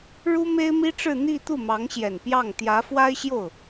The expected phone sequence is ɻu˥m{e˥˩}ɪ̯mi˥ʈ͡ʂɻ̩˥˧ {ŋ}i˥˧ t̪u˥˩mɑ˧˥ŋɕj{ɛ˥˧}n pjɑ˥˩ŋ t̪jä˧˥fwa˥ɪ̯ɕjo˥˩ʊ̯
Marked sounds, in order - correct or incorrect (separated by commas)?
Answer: incorrect, incorrect, incorrect